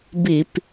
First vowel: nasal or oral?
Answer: oral